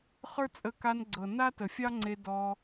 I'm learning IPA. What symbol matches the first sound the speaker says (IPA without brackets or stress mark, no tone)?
χ